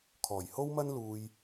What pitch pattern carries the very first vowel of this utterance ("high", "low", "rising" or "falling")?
low